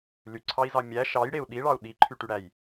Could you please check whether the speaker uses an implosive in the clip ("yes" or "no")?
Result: yes